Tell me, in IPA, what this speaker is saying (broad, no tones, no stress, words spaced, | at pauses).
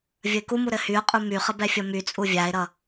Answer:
vʲəɪ̯kumu ɾɘhyʊ̯qʼu myχə bɛfʲʌmyt͡sʼu vʲaɪ̯ɾʌ